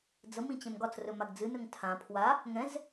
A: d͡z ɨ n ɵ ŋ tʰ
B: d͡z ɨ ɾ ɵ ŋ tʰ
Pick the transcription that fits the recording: A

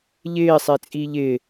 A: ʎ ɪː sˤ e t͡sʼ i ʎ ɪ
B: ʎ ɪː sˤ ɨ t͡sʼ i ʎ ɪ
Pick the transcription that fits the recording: A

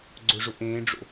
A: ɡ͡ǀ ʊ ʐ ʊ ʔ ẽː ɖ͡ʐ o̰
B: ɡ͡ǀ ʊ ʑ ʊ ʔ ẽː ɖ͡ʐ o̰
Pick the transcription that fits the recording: A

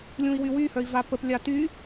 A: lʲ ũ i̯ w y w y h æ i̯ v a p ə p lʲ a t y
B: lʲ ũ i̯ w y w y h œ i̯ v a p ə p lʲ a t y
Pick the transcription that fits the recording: B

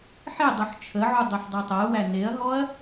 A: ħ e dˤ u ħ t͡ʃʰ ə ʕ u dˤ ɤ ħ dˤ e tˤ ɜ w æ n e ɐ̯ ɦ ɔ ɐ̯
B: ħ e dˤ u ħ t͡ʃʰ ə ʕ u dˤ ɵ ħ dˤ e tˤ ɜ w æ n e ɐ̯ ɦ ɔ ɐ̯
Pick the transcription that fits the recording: B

